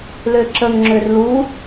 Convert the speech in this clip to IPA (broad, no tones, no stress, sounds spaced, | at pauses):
l ø ǁ ə ŋ ŋ͡ǁ ø r l u